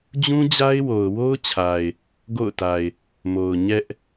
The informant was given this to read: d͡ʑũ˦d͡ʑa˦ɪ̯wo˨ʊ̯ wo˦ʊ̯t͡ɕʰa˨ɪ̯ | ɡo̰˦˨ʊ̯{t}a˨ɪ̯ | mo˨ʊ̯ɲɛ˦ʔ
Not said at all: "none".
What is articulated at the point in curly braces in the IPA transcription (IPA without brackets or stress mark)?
t